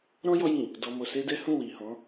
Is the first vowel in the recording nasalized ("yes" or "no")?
yes